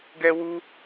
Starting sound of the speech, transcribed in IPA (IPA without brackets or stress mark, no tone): ɡ